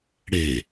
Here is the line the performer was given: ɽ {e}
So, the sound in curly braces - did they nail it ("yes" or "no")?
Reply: yes